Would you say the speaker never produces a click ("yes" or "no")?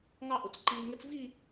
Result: no